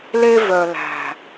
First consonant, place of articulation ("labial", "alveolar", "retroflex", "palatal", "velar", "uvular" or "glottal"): alveolar